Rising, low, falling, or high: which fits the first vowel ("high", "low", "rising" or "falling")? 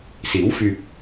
rising